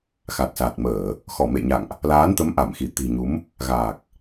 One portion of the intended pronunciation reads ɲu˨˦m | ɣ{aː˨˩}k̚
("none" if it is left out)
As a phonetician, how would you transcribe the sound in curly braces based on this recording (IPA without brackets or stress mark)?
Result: aː˨˩